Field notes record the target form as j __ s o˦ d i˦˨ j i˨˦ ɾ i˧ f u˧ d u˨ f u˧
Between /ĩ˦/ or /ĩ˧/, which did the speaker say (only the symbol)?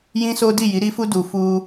ĩ˦